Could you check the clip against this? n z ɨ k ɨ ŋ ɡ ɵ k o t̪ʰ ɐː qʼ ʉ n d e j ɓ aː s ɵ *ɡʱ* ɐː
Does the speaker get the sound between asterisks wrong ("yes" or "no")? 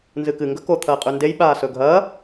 no